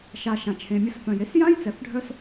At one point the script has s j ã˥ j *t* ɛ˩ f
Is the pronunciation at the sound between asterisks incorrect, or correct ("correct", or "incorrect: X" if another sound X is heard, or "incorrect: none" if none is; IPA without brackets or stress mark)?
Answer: incorrect: t͡s